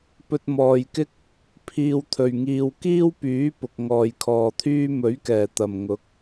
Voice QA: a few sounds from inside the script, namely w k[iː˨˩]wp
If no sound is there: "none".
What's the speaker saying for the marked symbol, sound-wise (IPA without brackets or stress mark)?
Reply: iː˥